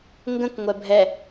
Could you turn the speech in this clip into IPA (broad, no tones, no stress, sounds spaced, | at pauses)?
ŋ ɡ ə̃ k ŋʷ ɛ bʱ ɛ